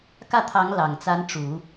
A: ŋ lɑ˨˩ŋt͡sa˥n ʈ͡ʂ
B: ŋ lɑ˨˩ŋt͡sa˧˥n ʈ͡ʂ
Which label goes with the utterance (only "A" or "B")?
B